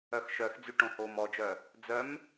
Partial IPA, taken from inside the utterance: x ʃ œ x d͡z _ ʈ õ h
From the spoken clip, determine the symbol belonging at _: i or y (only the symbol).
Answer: y